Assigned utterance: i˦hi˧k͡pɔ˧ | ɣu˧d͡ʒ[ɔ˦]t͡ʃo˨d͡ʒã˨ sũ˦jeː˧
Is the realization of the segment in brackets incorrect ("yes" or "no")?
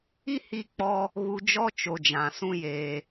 no